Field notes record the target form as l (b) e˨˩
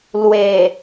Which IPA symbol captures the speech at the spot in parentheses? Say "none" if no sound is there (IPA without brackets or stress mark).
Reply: w